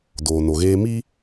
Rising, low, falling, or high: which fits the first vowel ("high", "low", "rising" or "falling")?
low